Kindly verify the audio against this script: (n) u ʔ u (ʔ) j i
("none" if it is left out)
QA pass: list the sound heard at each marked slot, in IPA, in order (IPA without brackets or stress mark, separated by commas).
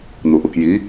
n, k